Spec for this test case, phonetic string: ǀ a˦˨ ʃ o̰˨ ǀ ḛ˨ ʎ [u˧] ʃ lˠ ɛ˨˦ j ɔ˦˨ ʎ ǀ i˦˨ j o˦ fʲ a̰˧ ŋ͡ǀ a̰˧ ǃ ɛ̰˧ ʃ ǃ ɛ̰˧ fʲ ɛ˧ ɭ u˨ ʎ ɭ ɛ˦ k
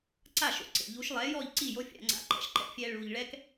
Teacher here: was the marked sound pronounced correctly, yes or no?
no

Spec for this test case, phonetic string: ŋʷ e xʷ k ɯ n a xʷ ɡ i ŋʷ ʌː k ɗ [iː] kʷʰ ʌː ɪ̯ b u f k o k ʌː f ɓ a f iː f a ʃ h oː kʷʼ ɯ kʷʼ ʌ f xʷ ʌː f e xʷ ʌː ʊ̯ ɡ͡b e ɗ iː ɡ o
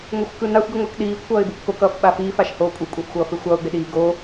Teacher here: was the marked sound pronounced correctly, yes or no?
yes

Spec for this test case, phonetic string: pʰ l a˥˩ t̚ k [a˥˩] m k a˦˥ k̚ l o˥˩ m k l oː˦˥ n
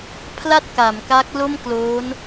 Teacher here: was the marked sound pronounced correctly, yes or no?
no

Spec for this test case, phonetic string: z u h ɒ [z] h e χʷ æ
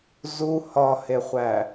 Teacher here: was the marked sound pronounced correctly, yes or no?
no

